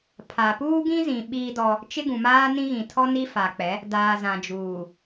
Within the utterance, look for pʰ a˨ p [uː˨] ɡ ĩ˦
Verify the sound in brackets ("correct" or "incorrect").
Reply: incorrect